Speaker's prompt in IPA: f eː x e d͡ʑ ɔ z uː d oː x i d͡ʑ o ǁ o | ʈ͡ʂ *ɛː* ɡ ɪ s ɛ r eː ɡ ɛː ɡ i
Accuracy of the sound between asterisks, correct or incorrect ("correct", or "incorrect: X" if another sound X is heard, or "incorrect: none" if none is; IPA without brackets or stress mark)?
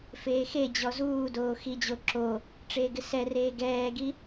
incorrect: eː